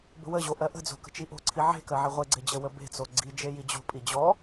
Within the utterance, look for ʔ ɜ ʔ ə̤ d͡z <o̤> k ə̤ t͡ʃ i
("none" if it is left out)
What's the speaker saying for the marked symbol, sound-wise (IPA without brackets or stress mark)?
o̤